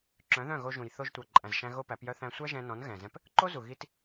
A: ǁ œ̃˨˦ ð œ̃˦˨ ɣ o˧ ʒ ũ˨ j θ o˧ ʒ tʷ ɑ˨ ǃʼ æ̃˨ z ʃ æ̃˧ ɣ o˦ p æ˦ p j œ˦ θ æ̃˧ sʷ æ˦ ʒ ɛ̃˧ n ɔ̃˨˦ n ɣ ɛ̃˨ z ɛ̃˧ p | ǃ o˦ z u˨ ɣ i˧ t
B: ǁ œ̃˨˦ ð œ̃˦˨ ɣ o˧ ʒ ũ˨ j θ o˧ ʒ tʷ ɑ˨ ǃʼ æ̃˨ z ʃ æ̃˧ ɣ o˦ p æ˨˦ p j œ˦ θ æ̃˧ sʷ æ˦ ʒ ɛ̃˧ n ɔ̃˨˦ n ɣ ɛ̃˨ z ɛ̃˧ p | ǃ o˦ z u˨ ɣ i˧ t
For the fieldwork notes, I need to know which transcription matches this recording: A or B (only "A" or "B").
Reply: B